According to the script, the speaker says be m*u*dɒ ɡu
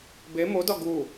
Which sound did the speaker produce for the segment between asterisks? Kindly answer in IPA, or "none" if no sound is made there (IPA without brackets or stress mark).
o